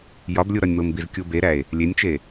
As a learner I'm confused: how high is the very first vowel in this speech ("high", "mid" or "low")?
low